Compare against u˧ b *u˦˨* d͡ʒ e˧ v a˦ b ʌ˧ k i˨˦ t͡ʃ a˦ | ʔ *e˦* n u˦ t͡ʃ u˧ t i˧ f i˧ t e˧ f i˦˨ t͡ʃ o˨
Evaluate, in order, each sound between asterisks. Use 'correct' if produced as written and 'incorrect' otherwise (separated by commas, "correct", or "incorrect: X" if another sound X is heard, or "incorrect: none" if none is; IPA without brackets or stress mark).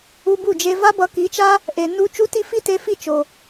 correct, incorrect: e˨